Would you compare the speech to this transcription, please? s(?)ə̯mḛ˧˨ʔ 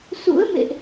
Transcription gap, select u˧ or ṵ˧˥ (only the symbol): ṵ˧˥